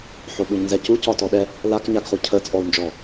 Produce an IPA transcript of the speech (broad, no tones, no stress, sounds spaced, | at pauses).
ħ o ɓ u ɲ n z ɛ c u c ɒ t ɔ ɗ ɛ | l a k ɲ a ɡ χ u cʰ ə t͡sʼ ɔ u̯ n d͡ʒ ɔ